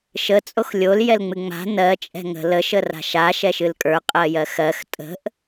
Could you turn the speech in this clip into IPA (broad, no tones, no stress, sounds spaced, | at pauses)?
ʃ ə t͡sʼ o x lʲ o l j ɛ l ŋ͡m ɨ ŋ͡m a̤ n ɜ t͡ʃʼ ɛ̤ ŋ ə̤ l ə ʃ ə r a̤ ʃ a ʃ ɛ ʃ ɨ l kʼ ə˞ qʼ ɜ j ɜ x ɜ x tʼ ə̤ ʔ